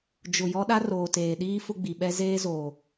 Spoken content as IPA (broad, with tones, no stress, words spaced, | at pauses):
d͡ʒʊ˨ jɔ˦ɗa˦ roː˨teː˨ɗiː˦ fʊ˦ɡ͡bi˨ɓɛ˦ zeː˦zoː˨